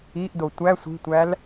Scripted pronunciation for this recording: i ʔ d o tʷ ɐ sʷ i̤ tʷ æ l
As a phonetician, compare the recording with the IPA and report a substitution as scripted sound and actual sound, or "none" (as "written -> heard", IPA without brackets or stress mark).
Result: ɐ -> æ